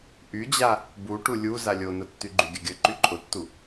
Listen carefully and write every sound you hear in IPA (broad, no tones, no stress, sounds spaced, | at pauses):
ʔ y d͡ʑ a | b u ʈ u lʲ u z a lʲ o n ʊ tː y ɡ͡ǃ y ɡʲ ə ɡʲ ə ǃ y ǃʼ ʊ tː u